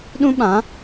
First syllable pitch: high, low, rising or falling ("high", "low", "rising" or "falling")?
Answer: high